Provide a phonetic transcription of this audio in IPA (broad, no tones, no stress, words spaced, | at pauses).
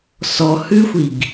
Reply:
sɔhʉxʷiɡ